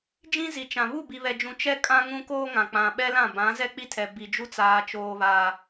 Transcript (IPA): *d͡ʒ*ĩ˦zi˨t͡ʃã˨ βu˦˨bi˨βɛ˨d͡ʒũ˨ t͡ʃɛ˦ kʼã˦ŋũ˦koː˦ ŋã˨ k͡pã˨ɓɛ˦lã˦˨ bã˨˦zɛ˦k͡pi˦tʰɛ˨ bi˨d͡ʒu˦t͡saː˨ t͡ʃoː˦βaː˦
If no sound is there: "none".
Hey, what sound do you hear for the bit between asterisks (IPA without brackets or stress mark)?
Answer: d͡ʒ